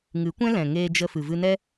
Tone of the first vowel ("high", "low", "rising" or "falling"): rising